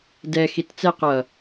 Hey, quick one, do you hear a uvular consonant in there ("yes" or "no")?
yes